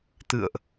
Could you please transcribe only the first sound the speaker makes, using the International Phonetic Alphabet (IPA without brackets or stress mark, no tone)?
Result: t̪